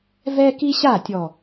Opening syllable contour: high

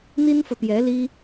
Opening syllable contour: high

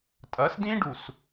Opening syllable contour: rising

